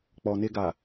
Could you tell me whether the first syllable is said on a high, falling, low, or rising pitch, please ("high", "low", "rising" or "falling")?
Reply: low